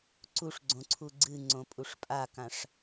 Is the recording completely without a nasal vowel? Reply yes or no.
no